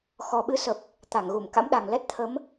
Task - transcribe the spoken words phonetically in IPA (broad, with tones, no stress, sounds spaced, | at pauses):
x ɔ˨˩ ɓ ɨ˨˦ s ə˨˩ p̚ | t̪ a˧˩ ŋ ɣ u˧˩ m k a̰˧˥ m ɗ a˨˩ ŋ l ɛ˦˥ t̚ t̪ʰ ə˨˦ m